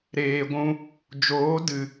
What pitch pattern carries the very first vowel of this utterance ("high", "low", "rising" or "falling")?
low